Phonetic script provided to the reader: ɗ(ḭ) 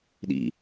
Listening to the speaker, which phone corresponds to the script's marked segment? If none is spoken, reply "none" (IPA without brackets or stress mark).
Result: ḭ